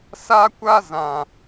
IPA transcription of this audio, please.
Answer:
s a˦ kʷ a˦ z ã˨

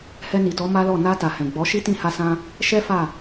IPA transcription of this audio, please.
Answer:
h ɛ˧ n i˨ t ɔ˨˦ m a˦ l ɔ˦˨ n a˧ t a˨ h ɛ̃˨ ɡ͡b ɔ˨˦ ʃ i˦ t ĩ˦˨ h a˧ s ã˧ | ʃ ɛ˦ f a˦˨

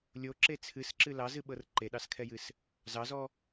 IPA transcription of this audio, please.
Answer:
lʲ o ǁ e t͡sʰ ɨ s ǁ ɨ l ɑ z ɨ ɓ ɤ r ǃ e ɗ ɑ s kʰ ɛ j ɨ s | z ɑ z ɔ

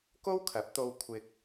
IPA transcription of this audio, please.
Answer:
k o˥ w kʰ ɐ˨˥ p̚ t̪ o˧ w kʷʰ ɪ˧ k̚

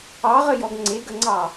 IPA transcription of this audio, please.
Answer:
ɑ ʁ ə j ɔ ɡ ŋ͡ǀ e ɡ ə ŋ͡ǀ ɑ

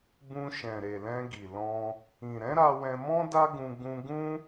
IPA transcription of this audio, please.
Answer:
b ũ˧ ʃ ɛ̃˨ ɾ e˨ l ɛ̃˧ ɡ i˨ l ɔ̃˧ | ĩ˨ ɾ ɛ̃˨˦ ɾ a˧ w ɛ̃˧ m ɔ̃˦ d a˦ ɡ ũ˧ ɡ ũ˧ ɡ ũ˦

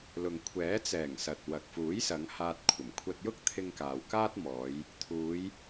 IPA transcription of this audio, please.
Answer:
l ʊ˨ ŋ kʷʰ ɛː˨˥ t͡s ɛː˨˩ ŋ s ɐ˨ t̚ w ɐ˨ k̚ f uː˨˥ j s ɐ˨˧ ŋ h aː˧ t̚ kʷʰ ɐ˨˩ m kʷʰ ɐ˧ t̚ j ʊ˥ k̚ t̪ʰ ɪ˧ ŋ k aː˨ w k aː˥ t̚ m ɔː˨˧ j | t̪ʰ uː˨˧ j

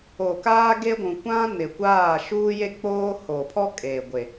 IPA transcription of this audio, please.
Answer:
o˨ k aː˦ ɡ e˦ ɡʷ ũ˨ kʷ ã˦ n ɪ˨ kʷ aː˦˨ ʃ uː˦ j e˦ k͡p oː˦ h o˨ pʰ ɔ˦ kʼ eː˨ ɡʷ e˨

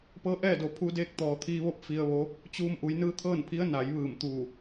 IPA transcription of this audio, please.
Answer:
p ɤː˧˥ ʔ ɛː˥˨ d o˩ pʰ u˧ d eː˧ k̚ t̪ ɔː˩ t̪ʰ iː˧ ʋ o˥˨ p̚ f i˧ ə̯ ʋ o˧˥ | t͡ɕ uː˧ m ʔ u˩˧ j n ɯː˧˥ t̪ʰ ɤː˥˨ n pʰ i˧˥ ə̯ n a˩˧ j ʋ ɯː˧˩ m t̪ uː˧˩

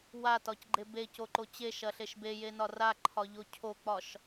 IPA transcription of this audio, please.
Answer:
w a t ɒ c ɡ͡ǃ e b e c o ǃ o t͡ɕ e ʃ ɐ ɬ e ʃ b e j e n ɒ r a ǃʰ ɒ ʎ o cʰ o k͡p ɒ ʃ

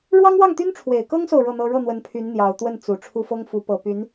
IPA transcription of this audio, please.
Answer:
ɻ w ɑ˥ ŋ w ɑ˥˩ ŋ t̪ y˥ n ʈ͡ʂʰ w e˨˩ ɪ̯ k ɤ˥ ŋ s o˨ ʊ̯ ɻ ɤ˥˩ n̪ ɤ˥ ɻ ɤ˥˩ n̪ w ə˧˥ n pʰ y˧˥ n n̪ j ɑ˨˩ ʊ̯ t̪ w ə˥˩ n t͡s u˨˩ ʈ͡ʂʰ u˥˩ f ɤ˥ ŋ f u˧˥ p ɤ˨˩ p y˧˥ n

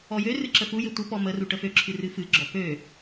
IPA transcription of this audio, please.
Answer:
ɔ j ø r ɨ ǁ ə f u j ɪ tʷ ə p ɔ m ə r u ʈ ə f ø ǁʰ ɨ r ɨ f ɨ ɡ͡ǁ ɔ p ø

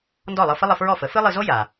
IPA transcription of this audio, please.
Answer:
n d ɔ˥˩ lˠ ɤ˧ f ə˥ lˠ ə˧ f ɹ ɔ˥˩ f ə˩˥ f ɨ˥ lˠ ɨ˧ z o˥ j a˩

